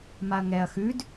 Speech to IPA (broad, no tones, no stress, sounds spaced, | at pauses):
m a ɐ̯ ŋ ɛ ɐ̯ x ʉ d